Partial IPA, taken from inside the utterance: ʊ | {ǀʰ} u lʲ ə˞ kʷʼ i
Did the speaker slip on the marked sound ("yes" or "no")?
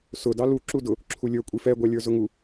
yes